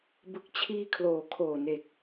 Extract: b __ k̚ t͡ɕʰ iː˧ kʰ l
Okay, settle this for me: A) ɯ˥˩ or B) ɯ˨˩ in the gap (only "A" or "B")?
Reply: B